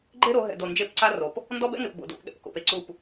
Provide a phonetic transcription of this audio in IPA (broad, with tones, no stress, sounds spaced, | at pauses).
ɡ͡ǃ e˦ ɾ o˨˦ ɦ ɛ̰˨ d o˨ n d͡ʒ e˦˨ p ǀ a˦ r o˨ p | n d ɔ˦ b ɛ̰˦ ŋ e˨ p b o̰˨ d o̰˦˨ p ɠ ɛ̰˦ p k o̰˨ p e˨ ǀ u˦˨ p